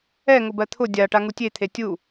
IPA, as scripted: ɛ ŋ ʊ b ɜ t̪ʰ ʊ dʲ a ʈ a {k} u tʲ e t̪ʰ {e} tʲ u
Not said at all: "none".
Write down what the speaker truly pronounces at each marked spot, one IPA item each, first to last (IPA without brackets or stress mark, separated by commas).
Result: ŋ, e